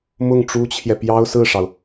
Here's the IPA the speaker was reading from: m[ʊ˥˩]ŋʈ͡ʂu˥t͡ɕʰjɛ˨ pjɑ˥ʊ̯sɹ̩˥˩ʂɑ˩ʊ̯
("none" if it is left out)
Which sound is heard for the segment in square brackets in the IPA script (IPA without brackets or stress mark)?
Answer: ʊ˥˩